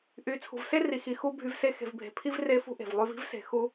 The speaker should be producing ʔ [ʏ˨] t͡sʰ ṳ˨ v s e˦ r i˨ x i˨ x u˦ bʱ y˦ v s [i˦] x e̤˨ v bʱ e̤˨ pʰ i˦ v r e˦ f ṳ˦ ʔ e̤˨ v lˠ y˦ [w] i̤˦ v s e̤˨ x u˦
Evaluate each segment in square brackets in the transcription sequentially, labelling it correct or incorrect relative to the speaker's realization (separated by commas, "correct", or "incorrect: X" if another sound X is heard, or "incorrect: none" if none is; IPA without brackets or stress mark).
incorrect: y˨, incorrect: e˦, incorrect: v